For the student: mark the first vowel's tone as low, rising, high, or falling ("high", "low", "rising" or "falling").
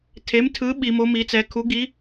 rising